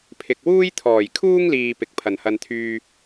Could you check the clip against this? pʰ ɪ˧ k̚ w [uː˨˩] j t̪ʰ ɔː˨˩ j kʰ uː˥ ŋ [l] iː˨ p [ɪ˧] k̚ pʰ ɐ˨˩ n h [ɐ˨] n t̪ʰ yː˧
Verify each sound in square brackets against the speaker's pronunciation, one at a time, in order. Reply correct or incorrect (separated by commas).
incorrect, correct, incorrect, incorrect